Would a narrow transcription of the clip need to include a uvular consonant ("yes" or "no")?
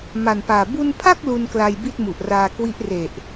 no